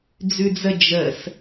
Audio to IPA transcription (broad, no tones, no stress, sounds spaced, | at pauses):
d͡z ʉ d͡z ə d͡ʒ ə s